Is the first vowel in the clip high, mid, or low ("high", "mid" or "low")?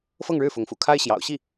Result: mid